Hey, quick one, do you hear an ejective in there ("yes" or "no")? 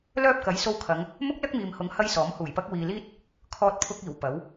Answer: no